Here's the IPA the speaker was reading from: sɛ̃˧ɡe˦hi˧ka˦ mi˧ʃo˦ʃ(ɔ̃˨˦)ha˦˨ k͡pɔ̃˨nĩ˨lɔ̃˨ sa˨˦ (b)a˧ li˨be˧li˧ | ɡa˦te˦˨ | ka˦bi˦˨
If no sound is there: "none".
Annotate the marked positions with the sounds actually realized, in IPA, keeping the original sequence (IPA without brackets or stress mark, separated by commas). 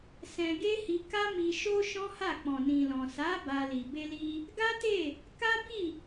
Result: ɔ̃˦, b